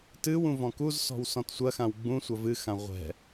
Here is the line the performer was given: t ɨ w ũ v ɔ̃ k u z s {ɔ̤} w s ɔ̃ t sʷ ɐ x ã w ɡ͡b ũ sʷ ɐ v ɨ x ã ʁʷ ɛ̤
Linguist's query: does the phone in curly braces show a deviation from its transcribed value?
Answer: no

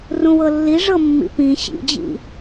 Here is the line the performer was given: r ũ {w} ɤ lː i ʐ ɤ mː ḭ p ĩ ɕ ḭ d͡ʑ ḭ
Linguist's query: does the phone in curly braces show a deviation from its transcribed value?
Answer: no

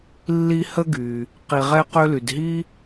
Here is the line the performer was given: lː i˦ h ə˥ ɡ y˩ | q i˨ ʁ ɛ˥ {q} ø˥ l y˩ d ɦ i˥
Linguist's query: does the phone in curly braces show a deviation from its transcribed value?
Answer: no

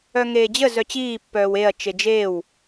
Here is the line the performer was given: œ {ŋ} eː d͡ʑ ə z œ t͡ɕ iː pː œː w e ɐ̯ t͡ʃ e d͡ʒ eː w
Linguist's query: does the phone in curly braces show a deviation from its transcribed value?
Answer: no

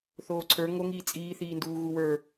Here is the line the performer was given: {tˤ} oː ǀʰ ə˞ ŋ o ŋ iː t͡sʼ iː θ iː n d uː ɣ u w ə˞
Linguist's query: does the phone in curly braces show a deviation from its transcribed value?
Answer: yes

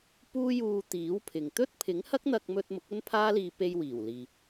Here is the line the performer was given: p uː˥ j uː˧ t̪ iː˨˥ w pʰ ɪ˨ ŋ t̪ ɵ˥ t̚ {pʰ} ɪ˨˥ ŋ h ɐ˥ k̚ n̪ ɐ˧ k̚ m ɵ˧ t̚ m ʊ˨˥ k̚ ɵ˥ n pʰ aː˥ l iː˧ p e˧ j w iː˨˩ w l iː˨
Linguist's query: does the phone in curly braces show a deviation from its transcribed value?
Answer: no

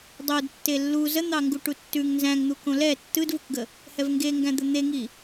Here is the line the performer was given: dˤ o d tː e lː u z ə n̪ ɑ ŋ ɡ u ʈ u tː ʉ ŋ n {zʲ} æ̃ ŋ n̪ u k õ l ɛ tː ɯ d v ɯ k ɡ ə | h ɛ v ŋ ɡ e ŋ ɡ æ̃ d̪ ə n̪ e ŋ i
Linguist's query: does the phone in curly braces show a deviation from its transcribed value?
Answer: yes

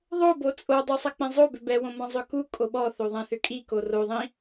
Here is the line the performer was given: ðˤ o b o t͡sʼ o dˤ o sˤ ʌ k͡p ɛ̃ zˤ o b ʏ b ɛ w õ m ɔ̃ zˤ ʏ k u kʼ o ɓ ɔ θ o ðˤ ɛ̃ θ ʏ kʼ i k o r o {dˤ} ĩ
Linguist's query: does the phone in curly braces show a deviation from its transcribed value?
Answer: yes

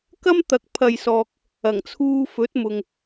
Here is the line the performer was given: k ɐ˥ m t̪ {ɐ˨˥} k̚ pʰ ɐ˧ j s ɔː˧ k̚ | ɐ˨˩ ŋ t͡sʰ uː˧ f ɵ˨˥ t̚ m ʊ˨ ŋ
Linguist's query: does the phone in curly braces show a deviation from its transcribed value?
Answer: no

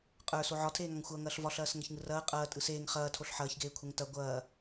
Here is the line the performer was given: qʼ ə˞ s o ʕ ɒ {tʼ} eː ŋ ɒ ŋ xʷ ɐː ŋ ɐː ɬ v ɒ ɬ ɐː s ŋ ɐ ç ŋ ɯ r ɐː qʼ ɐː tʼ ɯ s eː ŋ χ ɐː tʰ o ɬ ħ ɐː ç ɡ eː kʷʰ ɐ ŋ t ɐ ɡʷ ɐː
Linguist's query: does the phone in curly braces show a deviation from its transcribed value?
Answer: yes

